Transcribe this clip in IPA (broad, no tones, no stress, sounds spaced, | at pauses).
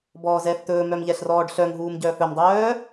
b ɔː z ɛː f t̪ ɵː m œ m ʎ ɛ ɬ r ɔː ɖ ɬ œ ŋ ɦ uː m ɟ œː f ɵ m dˤ œː